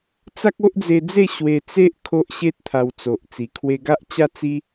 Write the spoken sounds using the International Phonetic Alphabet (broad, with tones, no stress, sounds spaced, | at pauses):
t͡s a˦ k̚ o˦ ʔ d͡z e˧ d͡z e˥˧ ɕ w e˧ t͡s e˦ ʔ kʰ o˦ ʔ ɕ e˦ t̚ t̪ʰ a˧ w t͡s o˨ ʔ t͡s i˨˩ kʰ w e˧ ɡ a˦ ʔ t͡ɕ a˦ t͡s i˦